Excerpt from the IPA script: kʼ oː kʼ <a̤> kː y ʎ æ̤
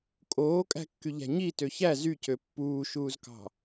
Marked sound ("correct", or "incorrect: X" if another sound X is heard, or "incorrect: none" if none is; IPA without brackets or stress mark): incorrect: æ̤